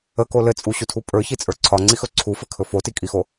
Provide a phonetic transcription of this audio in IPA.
ə k o l ɘ t͡sʼ u ɕ u tʰ u pʼ ə˞ ç i t͡sʼ ə˞ ǀʰ ɒ ŋ͡ǀ i x ɵ ǀʰ u f ɘ kʰ ɵ f o t i kʼ i x o

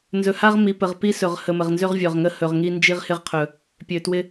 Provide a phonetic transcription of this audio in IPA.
n z ɵ˨ h a˦ ʁ m i˨ p ə˨ ʁ p i˦ s ɵ˨ ʁ h ə˨ m ə˨ ʁ n z ø˦ ʁ vʲ œ˨ ʁ ŋ ə˦ h ɵ˨ ʁ ŋ i˦ n d͡ʒ i˦ ʁ h ɪ˦ ʁ qʰ ɵ˨ | pʲ ø˨ t w ɪ˦

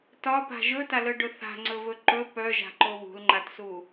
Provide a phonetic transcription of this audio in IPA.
t ɒ p a̤ ʒ ɵ t a l œ ɖ ɵ θ a̤ ŋ͡ǀ ɵ v ɵ ǃ ɵ p œ ʒ a̤ ǃ o β ṳ l ŋ͡ǃ a t s u

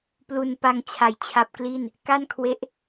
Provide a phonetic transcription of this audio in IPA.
p l u˧ n p a˧ ŋ t͡ɕʰ a˨˩ j t͡ɕʰ a˦˥ p̚ k l i˥˩ n | k a˥˩ n kʰ w e˦˥ ʔ

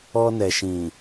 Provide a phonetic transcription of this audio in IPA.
ɔ˧ n ɛ˨ ʃ ĩ˨

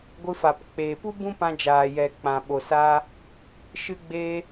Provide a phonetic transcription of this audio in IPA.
ɡʷ ɨ˧ f a˨ p k͡p eː˨ p u˦ b ũ˦ p ã˧ d͡ʒ aː˨ j ɛ˨ k͡p ã˨ ɓ o˨ s aː˧ | ʃ ɨ˧ ɡ͡b eː˧

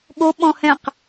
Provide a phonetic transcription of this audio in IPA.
ɠ o ɓ ɔ̃ h ɛ̃ q

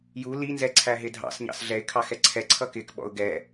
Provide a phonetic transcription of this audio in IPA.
j u l i n z ɛ ǀʰ æ ɦ ɪ dʱ ɑ̰ s ɲ ɑ̰ s ɮ ɛ ɪ̯ kʰ ɑ x ɛ ǀʰ ɛ ǀʰ ʌ k ɪ k ɓ ɔ̰ ʊ̯ ɡ ɛ

